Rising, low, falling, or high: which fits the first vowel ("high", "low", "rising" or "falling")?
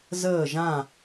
falling